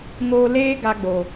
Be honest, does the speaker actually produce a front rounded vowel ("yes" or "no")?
no